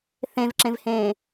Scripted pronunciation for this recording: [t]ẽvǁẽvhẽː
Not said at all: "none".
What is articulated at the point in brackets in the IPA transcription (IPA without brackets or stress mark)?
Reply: θ